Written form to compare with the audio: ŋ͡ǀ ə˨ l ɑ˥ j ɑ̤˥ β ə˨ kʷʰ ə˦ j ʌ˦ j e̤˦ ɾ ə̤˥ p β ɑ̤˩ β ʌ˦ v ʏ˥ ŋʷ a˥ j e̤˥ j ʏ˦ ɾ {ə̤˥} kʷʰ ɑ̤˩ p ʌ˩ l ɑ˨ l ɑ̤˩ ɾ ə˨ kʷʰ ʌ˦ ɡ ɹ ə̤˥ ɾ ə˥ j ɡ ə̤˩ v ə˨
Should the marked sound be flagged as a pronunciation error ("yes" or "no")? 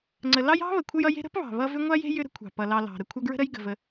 no